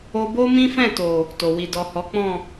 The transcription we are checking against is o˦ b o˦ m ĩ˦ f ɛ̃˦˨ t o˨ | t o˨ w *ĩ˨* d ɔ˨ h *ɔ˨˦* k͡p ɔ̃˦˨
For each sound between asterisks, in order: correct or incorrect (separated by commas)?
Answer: incorrect, correct